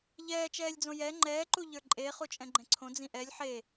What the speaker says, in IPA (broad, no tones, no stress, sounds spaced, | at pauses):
ʎ ɛː t͡ʃ ɛː lʲ d͡z õ j ɛ ŋ͡ǃ ɛː ǃ u ʎ ə˞ ǃʼ e χ u t͡ʃʼ ɛ̃ ɡ͡ǃ ɛ̃ ǀʰ õ d͡z ĩ ʔ ɛ lʲ ħ e